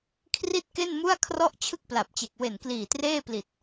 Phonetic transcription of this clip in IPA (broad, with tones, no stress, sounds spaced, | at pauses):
kʰ r i˥˩ t̚ k e˥˩ n m u˥˩ a̯ kʰ r ɔ˥˩ ʔ t͡ɕʰ ɯ˥˩ k̚ p l a˨˩ p̚ t͡ɕ e˨˩ k̚ w e˨˩ n k l iː˨˩ t r eː˥˩ p l i˨˩ t̚